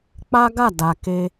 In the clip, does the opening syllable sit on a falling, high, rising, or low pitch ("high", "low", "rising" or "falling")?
high